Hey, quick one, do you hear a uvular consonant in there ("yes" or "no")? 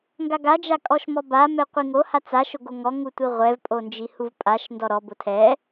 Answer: yes